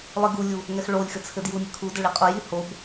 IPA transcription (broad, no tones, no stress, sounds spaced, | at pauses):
lˠ i ɡ u lʲ u | ŋ ɛ x ɭ o lʲ x ɘ t͡sʰ ɘ d j u nʲ ɘ kʰ u d ɘ ɭ i qʼ o j i h o b